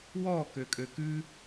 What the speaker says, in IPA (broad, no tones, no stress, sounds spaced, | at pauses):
w ɔ k ø kʼ ø k ʉ